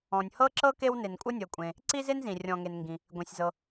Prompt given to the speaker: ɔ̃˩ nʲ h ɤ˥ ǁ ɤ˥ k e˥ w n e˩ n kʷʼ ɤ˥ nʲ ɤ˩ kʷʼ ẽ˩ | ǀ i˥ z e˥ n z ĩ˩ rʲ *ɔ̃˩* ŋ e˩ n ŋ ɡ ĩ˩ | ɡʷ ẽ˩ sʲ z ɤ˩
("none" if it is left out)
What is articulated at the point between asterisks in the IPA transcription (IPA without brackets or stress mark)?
ɔ̃˩